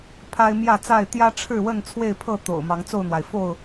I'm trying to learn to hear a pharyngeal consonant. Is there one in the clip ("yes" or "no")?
no